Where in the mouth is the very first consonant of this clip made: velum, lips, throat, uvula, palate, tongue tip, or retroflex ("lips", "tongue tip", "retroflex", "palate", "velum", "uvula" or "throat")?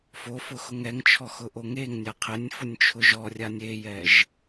lips